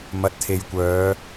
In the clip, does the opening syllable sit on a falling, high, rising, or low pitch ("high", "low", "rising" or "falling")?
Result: low